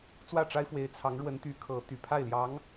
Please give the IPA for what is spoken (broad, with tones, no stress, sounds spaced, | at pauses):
t͡s w ä˥˩ ʈ͡ʂ a˥ ɪ̯ f w e˧˥ ɪ̯ t͡sʰ ɑ˧˥ ŋ ɻ w ə˧˥ n t̪ y˧˥ kʰ ɤ˧˥ t̪ y˨˩ pʰ a˥˩ ɪ̯ l j ɑ˧˥ ŋ